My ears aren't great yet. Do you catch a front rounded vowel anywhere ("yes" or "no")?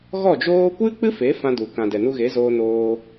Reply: no